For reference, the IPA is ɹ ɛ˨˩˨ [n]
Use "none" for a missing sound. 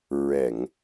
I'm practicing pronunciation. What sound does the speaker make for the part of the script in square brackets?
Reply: ŋ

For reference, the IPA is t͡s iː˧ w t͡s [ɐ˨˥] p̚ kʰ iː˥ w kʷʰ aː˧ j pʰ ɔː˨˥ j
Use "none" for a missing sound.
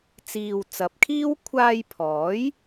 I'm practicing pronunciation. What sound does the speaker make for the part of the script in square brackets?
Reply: ɐ˨˥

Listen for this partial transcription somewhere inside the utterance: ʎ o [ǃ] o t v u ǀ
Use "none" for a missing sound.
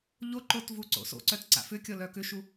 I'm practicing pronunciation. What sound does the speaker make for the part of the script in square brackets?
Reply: ǃ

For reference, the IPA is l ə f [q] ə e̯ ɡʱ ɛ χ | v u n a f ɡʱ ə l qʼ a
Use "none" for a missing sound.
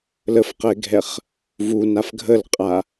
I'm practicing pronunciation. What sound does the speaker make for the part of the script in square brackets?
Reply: q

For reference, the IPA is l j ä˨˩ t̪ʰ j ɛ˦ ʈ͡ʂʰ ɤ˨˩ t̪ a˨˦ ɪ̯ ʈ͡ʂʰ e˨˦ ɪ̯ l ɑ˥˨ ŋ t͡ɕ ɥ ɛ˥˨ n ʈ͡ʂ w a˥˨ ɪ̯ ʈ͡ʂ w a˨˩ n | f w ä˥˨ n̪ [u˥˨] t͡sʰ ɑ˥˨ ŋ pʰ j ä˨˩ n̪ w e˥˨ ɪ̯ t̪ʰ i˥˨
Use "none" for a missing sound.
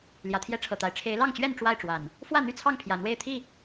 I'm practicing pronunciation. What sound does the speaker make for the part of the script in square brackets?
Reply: y˥˨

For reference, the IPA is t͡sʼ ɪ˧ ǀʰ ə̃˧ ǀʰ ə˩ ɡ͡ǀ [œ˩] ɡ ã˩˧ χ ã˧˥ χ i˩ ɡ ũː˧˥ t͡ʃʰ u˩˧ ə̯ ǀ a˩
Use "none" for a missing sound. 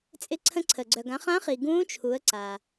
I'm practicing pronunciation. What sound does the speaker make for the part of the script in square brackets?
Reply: œ˩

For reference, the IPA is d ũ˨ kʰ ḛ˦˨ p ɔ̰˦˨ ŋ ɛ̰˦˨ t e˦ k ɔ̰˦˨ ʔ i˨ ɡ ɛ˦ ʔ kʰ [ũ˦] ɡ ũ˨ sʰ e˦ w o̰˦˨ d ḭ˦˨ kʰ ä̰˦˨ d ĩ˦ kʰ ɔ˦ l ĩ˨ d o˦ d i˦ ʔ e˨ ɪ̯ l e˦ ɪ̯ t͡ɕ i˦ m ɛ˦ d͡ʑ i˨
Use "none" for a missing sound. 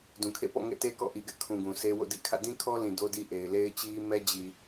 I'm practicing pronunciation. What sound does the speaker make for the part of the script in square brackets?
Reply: ũ˨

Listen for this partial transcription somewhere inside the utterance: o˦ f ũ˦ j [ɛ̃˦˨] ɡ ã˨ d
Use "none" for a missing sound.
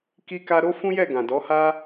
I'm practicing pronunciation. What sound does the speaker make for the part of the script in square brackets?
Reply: ɛ˦˨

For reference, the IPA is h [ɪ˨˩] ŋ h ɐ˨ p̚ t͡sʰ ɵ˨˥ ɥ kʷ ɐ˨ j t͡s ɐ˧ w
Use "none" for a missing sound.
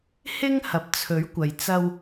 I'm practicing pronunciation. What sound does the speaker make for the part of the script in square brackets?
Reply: ɪ˥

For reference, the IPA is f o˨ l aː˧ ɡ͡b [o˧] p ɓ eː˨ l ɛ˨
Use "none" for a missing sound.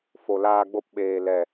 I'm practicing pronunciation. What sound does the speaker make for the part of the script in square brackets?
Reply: o˧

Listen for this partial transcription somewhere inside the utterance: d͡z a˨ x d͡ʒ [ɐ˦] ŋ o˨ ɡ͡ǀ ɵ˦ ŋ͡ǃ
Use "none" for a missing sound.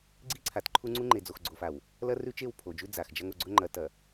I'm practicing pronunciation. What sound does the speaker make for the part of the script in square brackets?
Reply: ɐ˦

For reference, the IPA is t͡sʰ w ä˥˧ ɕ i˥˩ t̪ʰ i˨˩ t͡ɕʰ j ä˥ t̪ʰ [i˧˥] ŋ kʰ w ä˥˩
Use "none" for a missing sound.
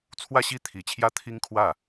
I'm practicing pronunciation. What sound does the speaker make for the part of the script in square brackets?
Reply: i˥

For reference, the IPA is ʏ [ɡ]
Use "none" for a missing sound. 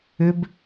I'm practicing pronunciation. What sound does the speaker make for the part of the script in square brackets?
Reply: b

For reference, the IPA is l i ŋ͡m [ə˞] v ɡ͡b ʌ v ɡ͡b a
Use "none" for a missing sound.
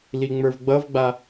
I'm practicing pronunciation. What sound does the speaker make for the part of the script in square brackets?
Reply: ə˞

